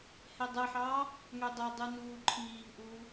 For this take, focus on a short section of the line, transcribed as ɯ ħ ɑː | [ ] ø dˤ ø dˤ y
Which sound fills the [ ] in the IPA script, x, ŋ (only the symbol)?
ŋ